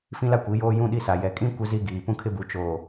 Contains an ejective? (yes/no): yes